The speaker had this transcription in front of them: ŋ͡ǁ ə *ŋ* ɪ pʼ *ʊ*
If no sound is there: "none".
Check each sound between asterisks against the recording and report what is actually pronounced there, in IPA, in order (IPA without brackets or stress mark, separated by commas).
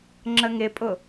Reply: ŋ, ʊ